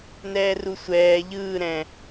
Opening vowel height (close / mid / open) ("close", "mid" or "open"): mid